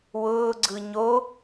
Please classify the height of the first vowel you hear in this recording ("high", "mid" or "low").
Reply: high